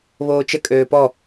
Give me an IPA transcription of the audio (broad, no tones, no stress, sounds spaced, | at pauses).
β oː t͡ʃ ə kʼ øː p ɔ